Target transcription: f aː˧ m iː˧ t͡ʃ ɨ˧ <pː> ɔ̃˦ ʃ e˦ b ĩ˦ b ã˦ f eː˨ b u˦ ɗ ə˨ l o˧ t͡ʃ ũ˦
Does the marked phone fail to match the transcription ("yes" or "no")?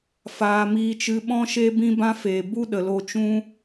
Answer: yes